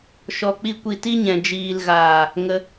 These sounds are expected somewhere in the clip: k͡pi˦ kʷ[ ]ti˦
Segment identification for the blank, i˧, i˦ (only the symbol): i˧